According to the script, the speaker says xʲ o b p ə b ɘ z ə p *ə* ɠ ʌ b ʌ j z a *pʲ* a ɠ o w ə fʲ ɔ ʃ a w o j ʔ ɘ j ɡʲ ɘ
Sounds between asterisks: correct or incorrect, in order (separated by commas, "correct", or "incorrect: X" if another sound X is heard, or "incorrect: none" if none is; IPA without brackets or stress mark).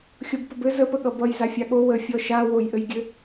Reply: correct, incorrect: fʲ